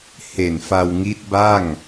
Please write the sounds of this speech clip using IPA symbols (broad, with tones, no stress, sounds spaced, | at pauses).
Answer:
h e˨˩ n f a˧ w ŋ i˦˥ t̚ b a˥˩ ŋ